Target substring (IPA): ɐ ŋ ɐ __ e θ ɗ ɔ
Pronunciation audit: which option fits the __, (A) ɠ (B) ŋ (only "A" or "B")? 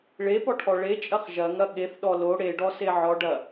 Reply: A